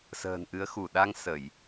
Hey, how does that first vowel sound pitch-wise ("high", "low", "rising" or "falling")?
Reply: low